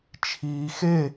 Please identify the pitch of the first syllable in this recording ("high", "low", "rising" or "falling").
low